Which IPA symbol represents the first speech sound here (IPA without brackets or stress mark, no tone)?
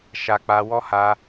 ʃ